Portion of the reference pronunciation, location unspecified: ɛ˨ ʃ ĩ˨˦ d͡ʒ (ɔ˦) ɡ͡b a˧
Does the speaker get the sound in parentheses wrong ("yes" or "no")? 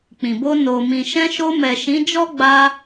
no